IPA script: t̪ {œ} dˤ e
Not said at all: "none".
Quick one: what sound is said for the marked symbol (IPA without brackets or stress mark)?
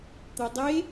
œ